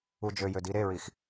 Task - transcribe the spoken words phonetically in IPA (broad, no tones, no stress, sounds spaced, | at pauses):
u d͡ʒ ø j ø d i ɾ e ɹ i x